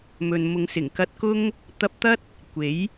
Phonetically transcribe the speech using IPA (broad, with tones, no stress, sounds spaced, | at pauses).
m ɵ˨ n m ʊ˨˧ ŋ s ɪ˨˩ ŋ k ɐ˧ t̚ k ʊ˥ ŋ | t̪ ɐ˧ p̚ t̪ ɐ˥ t̚ | kʷ e˨˥ j